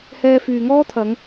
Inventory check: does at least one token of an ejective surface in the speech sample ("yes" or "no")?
no